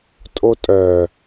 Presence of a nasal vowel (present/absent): absent